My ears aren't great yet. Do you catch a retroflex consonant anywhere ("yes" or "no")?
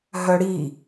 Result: yes